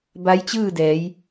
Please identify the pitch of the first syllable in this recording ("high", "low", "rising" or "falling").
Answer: rising